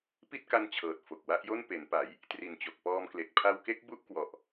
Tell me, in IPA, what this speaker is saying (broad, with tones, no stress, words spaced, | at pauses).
pi˥˩t̚ka˦˥nt͡ɕʰɤː˨˩t̚ fo˨˩k̚wa˦˥ʔjo˥˩n pe˩˦npa˩˦j | tri˨˩n t͡ɕo˨˩k̚pɔː˧mkle˨˩k̚ pʰa˧wke˦˥k̚ bu˥˩ʔkwɔ˨˩ʔ